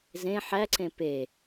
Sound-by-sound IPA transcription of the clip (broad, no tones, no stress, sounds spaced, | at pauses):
z ẽ ħ æ ǀ ẽ p e